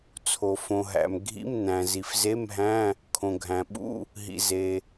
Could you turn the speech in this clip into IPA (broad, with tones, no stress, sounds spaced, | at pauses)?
t͡sʰ o˩ f õ˩ ɦ æ̰˩ m ɡʱ ḭ˧˥˧ m n æ̃˩ z i˩ f z e˧˥˧ m ɦ æ̃˧˥˧ | kʰ õ˩ ɡʱ æ̃˩ ɓ ṵ˧˥˧ | ɦ ḭ˩ z e˩